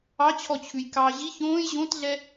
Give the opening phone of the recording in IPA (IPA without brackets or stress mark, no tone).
ɑ